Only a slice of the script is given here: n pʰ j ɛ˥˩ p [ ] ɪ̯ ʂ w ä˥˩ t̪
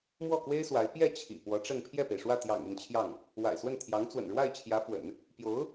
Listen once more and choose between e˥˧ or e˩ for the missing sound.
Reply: e˩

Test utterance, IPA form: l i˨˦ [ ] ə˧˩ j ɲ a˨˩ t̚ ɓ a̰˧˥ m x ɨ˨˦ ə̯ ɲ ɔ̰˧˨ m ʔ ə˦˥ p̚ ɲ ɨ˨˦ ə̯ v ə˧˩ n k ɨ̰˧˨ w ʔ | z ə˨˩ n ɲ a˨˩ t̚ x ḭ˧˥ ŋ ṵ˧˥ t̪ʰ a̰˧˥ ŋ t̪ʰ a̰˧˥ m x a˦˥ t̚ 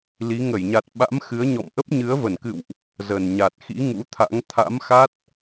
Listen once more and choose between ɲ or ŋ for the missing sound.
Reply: ŋ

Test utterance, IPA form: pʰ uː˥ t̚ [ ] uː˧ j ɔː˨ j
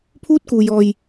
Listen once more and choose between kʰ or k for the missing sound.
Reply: k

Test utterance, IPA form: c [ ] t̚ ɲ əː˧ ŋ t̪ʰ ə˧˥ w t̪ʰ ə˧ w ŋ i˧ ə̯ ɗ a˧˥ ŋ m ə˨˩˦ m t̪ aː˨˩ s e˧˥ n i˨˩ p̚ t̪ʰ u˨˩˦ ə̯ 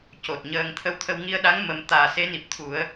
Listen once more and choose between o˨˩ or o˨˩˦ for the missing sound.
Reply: o˨˩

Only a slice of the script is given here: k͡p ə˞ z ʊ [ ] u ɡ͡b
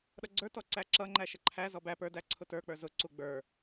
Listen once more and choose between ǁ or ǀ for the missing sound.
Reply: ǀ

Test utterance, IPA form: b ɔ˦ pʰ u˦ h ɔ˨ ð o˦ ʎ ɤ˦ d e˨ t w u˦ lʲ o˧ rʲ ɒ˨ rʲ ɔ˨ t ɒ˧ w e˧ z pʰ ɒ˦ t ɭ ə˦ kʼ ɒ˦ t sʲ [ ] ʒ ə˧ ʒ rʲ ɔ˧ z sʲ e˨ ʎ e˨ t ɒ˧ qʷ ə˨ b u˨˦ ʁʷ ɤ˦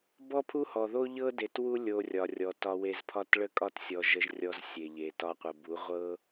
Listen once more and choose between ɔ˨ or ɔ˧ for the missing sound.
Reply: ɔ˨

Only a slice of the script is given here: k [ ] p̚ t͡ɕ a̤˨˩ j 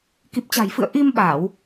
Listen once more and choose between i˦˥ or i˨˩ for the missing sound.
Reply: i˨˩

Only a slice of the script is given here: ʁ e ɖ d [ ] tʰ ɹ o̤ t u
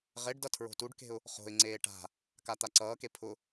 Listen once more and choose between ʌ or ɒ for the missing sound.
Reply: ʌ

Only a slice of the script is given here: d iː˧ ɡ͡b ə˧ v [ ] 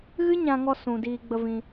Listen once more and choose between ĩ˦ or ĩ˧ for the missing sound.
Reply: ĩ˧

